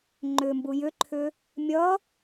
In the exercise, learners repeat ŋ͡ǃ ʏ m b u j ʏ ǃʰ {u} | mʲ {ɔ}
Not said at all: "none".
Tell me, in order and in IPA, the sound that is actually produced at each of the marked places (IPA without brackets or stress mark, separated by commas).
ʏ, ʌ